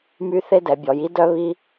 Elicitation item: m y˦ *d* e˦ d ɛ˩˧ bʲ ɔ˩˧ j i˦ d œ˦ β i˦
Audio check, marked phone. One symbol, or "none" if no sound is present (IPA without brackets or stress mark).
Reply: θ